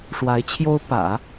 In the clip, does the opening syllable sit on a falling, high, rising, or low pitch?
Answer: rising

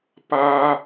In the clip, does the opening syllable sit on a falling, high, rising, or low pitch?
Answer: high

